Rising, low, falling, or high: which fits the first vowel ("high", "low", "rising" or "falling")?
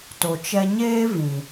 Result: low